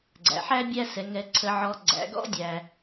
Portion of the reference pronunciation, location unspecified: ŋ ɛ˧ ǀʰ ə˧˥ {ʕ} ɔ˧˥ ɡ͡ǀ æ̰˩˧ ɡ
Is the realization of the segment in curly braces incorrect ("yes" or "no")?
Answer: no